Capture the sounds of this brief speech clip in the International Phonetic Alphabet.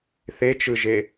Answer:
θ e t͡ʃ ɯ ʒ e

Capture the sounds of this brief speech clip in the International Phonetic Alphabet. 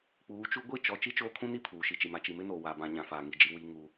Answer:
k͡p uː˨˦ t͡ʃ u˦ ɡʷ i˦˨ t͡ʃ ɔ˨ t͡ʃ i˦ t͡ʃ oː˦ kʰ ũ˦ n i˦ pʰ uː˨ ʃ i˨ t͡ʃ i˨ m a˨ t͡ʃ i˨ m ɪ˦ n oː˨ w a˨ b ã˨ ɲ ã˨ f aː˨ ŋ i˦˨ d͡ʒ i˦ w i˦ ŋ u˦

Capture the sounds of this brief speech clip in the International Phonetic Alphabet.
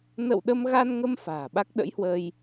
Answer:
n ə̰˧˨ w ɗ ə˧ m ɣ a˧ n ŋ ə˧ m f a̤ː˨˩ ɓ a˦˥ k̚ ɗ ə̰˧˥ j h w ə˧ j

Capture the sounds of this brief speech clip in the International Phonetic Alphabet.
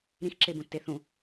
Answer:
ɾ ĩ x ǁ e b ũ tː e θ ũ

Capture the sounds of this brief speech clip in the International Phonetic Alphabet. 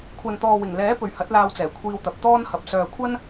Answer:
kʷʰ ɐ˨ n t̪ ɔː˨ w ɪ˨˩ ŋ l ɛː˨˥ p ɵ˨ ɥ h ɐ˨˥ t̚ l aː˧ w t͡s ɛː˨˩ kʷʰ iː˧ w t̪ ɐ˨ p̚ t̪ ɔː˥ n h ɐ˨ p̚ s œː˨ kʷʰ ɐ˥ n

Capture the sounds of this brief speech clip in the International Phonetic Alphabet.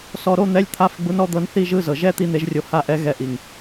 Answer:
s ɔ˧ ɾ o˧˥˧ n̪ ɛ˧˥˧ lʲ t̪ʰ a˧˥˧ f ɡ͡b u˧˥ n ɔ˧˥ d̪ ɤ˧˥ n θ i˥˧ ʒ ɯ˥˧ z ɤ˨˩ ʒ ɛ˥˧ t̪ i˥˧ n̪ e˧˥ ʒ rʲ o˧ h a˥˧ ʔ ɛ˧˥ ɣ ɛ˧ ʔ i˨˩ ŋ

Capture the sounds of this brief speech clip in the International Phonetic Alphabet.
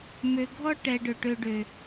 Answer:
m ø˨ ɡʱ ɔ˧ ʈ ɛ˨ ɖ ɵ˨ ʈ ø˨ ɖ ø˨

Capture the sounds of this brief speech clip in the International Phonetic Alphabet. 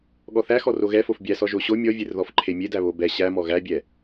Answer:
ɠ ɔ θ æ x ɔ r o ɣ ɛ f o f bʲ æ s ɔ ʒ o ɕ o mʲ ɔ vʲ e r ð ɔ f ǃʰ e mʲ e d æ β o b ɛ ɕ æ m ɔ ɣ æ bʲ ɛ

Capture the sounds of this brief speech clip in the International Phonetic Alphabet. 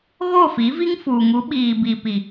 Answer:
ɣ o˦˨ f i˨˦ v i˦ ŋ f uː˨ ŋ u˨˦ ɓ iː˨ b i˨ p i˨

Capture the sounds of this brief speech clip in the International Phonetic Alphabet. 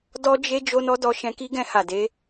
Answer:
d ɔ˦ d͡ʒ e˦ d͡ʒ o˦ n ɔ˦ d ɔ˧ ʃ ɛ̃˧ k i˦ ɡ ɛ̃˧ h a˨ d e˨˦

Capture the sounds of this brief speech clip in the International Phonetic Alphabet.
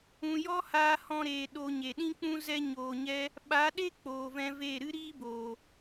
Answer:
ũ˨ j ɔ˦ h aː˧ h ɔ̃˧ ɾ eː˨ ɗ o˧ ɲ e˨ ɗ ĩ˦ k͡p ũ˦ z ɛ˦ ɲ oː˧ ɲ ɛ˦ | ɓ a˨˦ ɗ e˦ k͡p oː˨ v ɛ̃˧ v eː˦˨ ɾ ɨ˦ ɾ iː˦ b oː˨

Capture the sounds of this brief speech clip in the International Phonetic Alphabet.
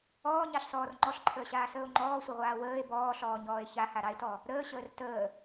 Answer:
ɔː ɲ ɑ ɬ s ɔː r ŋ͡ǃ ɔ ɬ ǃʰ əː ɕ aː s əː o̯ ŋ͡ǃ ɔː sʷ ə ʁʷ aː w əː e̯ b ɔː ɬ ɔː ɲ ɔː e̯ ç a h a ɾ ɑ e̯ t ɔ | ɾ əː ɕ əː r t əː

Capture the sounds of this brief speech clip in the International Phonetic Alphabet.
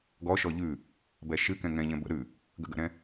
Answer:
ɡ ɔ ʃ ɔ ʎ ʉ | b ɛ ʃ ɨ k ɛ̃ ŋ ɛ̃ ʎ ɛ̃ b ə̰ ɾ ʉ | ɡ ə̰ ɡ ə̰ ɾ ɛ̃

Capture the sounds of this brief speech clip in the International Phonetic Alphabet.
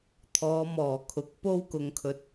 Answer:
t̪ʰ ɔː˨˧ m ɔː˨˩ kʰ ʊ˨˥ k̚ p o˥ w k ʊ˧ ŋ kʰ ɵ˧ t̚

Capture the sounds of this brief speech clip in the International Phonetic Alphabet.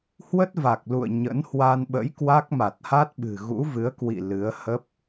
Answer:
h w ə˦˥ t̚ v a˨˩ k̚ l ṵ˧˨ ə̯ ɲ ə̰˧˥ n h w a˧ n ɓ ə̰˧˥ j k w a˦˥ k̚ m a˨˩ t̚ h a˦˥ t̚ ɓ ɨ̤˨˩ ɣ ṵ˧˥ v ɨ˨˦ ə̯ k w ḭ˧˨ l ɨ˨˦ ə̯ h ə˦˥ p̚

